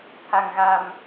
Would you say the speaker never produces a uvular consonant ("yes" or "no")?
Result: yes